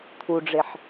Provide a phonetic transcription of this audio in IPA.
t̪ʰuɖ͡ʐeħ

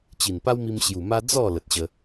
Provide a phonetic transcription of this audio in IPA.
t͡ɕi˨˩npa˦wmi˧m ɕju˨˩ma˦ d͡zɔ˥˧ lə˨t̚ɕə˧

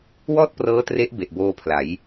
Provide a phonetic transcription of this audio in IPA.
wɔː˥˩t̚prɤː˦˥tre˦˥ʔ be˨˩ʔboː˧pʰla˩˦j

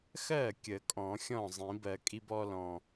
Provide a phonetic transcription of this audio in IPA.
xɜ˥˩kʲə˨˩˦ kʼɔ̃˨˩˦xʲɔ̃˥˩zˤĩ˨˩˦bɜ˨˩˦ kʼi˥bɔ˥lɔ̃˨˩

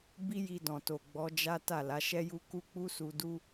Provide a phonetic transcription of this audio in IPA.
bi˦ji˧dɔ̃˨to˨ ɡ͡bɔ˨˦d͡ʒa˦ ta˦˨la˨˦ʃɛ˦ju˦ ku˦k͡pu˦su˧du˦

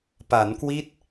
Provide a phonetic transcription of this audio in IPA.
pa˩˦nkwi˦˥t̚

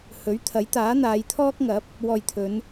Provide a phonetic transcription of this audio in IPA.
hɵ˨˥ɥ t̪ʰɐ˨˥jt̪aː˨˥n̪aː˨˧j t̪ʰɔː˥k̚ŋɐ˨˥p̚ | wɔː˨jt̪ʰɵ˨˧n

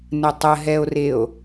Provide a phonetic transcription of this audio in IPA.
nətˤəɦɛo̯reo̯

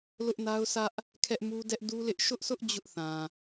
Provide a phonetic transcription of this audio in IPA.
lʊ˦ʔna˦ʊ̯sä˦ʔ | kʰɛ˦ʔmu˦ dɛ˦ʔ du˦lɪ˦ʔ ʃʊ˦ʔsʊ˦ʔ d͡ʑʊ˦ʔθã˨

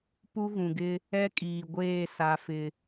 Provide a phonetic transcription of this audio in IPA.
pu˦ɣũ˨ɡɪ˦ | ɛ˦kʼiː˨ɡʷeː˦˨ sa˦fɪ˦

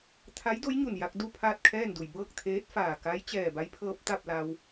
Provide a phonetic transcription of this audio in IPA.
t̪ʰa˧˥jdo˧˥jɲu˧˩nja˧k̚ du˥˨ pʰaː˥˨t̚kʰɛː˥˨ndu˩j bɤː˥˨k̚t̪ʰeː˧˥t̚faː˧˩ ka˧˥j t͡ɕɛː˧˩ba˧˥j pʰɤː˧p̚t̪a˥˨p̚la˧w

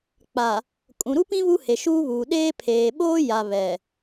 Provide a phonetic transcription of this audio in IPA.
k͡pa˨ | kʼũ˨ɾu˦pĩ˦ βu˦he˨ʃuː˦βuː˨ ɗeː˦ pʰeː˨ɓoː˦ ja˨βɛ˨

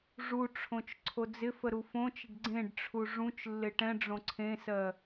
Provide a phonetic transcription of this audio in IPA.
ʐuʈ͡ʂʰõt͡ʃ ǀʰod͡zɪfə ɾufõt͡ʃəɖ ɡ͡ǀẽɖʈ͡ʂʰu ʐũt͡ʃlːɪ ʈɛ̃ɖ͡ʐõ ǀʰẽsɜ

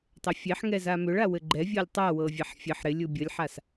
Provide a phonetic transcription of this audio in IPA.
tˤɘfʲeħŋɛ zamʏɭa wɘɡ͡ǃɛvʲɤlʲ tˤawɤ vʲaħfʲɘħ ɾɪ lʲubʲəlʲħas

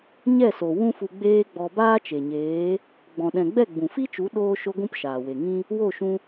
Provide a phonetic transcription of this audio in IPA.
ɲɛ˦˨so˨ wũ˦fu˧ɡ͡beː˦ɡ͡bɔ˧ baː˦t͡ʃe˨ɲeː˨˦ | ɡ͡bɔ̃˨ɗɛ̃˨ ɡ͡bɛ˦˨ɡ͡bũ˨fi˦t͡ʃu˨˦ ɗoː˦ ʃo˦ɡʷũ˦p ʃaː˨we˨ŋĩ˦ | wo˦˨ʃũ˧

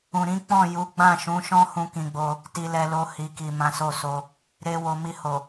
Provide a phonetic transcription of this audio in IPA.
ũ˨ɾĩ˨˦ k͡pɔ̃˦˨ ju˨˦ɡ͡bã˦˨ʃũ˨˦ʃɔ̃˦ hũ˦kĩ˧ɡ͡bo˧ | ti˧lɛ˧lo˧ hi˨ki˨ mã˨˦so˦˨so˧ | ɾe˧wo˨mi˧ho˨

